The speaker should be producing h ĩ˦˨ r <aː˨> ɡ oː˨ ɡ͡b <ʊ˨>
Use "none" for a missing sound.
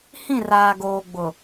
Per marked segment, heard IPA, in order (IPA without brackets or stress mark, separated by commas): aː˨, ʊ˨